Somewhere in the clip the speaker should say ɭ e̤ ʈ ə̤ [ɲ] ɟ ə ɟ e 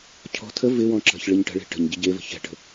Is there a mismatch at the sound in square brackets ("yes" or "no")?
no